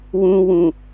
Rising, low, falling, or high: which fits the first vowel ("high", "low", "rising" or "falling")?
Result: low